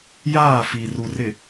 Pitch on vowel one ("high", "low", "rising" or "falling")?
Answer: falling